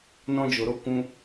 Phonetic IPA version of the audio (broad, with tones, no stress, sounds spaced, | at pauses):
n ɔ̃˦ d͡ʒ o˧ ɾ o˦ kʷ ũ˦